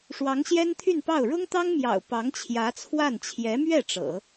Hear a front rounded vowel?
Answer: yes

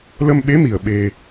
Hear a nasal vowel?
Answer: no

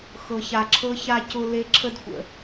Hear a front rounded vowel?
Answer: no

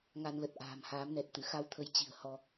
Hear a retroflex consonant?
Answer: no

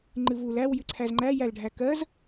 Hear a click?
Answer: yes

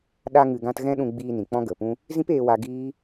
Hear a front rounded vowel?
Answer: no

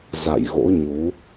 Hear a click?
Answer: no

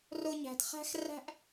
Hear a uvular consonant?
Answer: yes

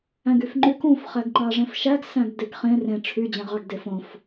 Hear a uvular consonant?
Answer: yes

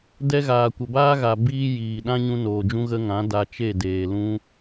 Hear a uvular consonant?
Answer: no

